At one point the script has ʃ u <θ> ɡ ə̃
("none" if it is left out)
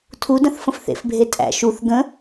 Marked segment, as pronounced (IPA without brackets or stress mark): θ